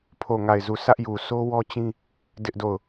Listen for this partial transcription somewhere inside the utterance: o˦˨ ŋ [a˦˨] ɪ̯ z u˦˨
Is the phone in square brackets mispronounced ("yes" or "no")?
no